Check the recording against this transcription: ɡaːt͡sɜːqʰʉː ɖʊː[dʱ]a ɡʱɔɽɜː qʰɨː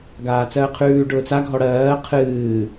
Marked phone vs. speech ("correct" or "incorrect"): incorrect